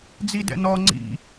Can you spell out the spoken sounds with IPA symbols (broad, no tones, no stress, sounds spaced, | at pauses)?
d͡z i d ɛ̰ n ɔ ŋ͡ǀ ḭ